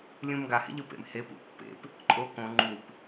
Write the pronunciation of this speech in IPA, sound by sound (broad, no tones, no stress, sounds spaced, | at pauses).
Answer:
lʲ ũ m ɡ a h ḛ ʎ ɯ p ḛ m h e p ṵ pː ḛ p | ǃʼ o k õ ŋ͡ǃ u p